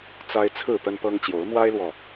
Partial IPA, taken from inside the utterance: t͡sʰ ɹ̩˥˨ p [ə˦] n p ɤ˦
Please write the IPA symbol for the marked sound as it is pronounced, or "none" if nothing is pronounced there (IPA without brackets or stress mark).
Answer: ə˦